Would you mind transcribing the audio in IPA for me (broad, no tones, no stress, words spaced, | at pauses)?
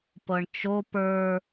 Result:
pɤɳt͡ʃo pə˞